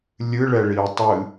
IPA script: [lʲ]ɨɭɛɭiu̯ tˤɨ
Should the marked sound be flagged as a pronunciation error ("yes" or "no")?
no